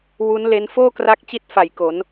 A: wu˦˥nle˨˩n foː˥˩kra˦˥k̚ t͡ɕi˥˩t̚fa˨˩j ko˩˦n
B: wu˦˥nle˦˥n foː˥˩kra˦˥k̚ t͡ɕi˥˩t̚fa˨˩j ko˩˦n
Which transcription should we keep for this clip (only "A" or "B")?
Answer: B